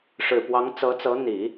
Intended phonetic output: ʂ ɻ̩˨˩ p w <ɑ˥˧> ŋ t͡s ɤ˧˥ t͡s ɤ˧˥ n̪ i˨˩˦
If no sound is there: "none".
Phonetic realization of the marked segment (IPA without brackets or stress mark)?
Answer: ɑ˧˥